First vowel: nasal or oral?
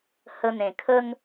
oral